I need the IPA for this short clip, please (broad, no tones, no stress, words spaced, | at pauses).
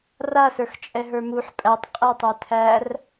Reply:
rasə˞x t͡ʃʼɛɦə˞muħ pʼætˤ qʼɛtˤə˞tʰær